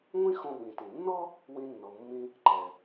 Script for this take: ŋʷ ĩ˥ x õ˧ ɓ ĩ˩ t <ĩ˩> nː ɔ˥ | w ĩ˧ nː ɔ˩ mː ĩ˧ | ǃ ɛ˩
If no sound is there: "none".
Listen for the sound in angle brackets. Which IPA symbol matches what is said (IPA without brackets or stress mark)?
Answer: ĩ˩